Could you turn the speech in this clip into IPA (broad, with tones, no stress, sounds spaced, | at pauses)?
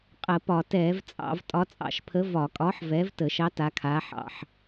qʼ ə˧˩˧ p ɒ˧˩˧ t ɛː˧˩˧ v t͡sʼ ɑ̰˧˩˧ v tʼ ɒ˨˥ t͡sʼ ɑ̰˧˩˧ ʃ pʰ ə˨˥ v ɒ˧˩˧ kʼ ɒː˨˥ ħ v ɛː˨˥ v t əː˧˩˧ ʃ ɑ˨˥ t a˨˥ kʰ aː˨˥ ħ ɑ̰˧˩˧ ħ